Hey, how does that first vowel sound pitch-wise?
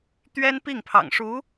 high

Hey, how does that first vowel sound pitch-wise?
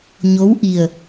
rising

